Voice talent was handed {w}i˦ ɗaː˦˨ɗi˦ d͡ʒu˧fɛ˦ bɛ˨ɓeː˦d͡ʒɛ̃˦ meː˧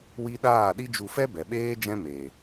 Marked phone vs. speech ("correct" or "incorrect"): correct